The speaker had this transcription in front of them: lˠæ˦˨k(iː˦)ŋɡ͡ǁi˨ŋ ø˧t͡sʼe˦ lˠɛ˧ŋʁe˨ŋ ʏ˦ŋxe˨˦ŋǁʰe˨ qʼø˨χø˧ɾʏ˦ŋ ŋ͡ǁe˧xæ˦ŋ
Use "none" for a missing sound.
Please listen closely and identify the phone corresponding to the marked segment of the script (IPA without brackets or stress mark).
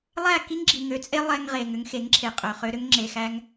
i˦